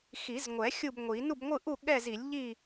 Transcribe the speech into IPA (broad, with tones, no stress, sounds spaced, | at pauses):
x i˨˩˦ z ŋʷ ɛ˨˩˦ xʲ u˥˨ b ŋʷ i˨˩˦ n u˥˨ b ŋʷ ɯ˥˨ ʔ u˥˨ ɠ ɛ˥˨ z i˨˩˦ lʲ ʎ i˥˨